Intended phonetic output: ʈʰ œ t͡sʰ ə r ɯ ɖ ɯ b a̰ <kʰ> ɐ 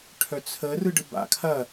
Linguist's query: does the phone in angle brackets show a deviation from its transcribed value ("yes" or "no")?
no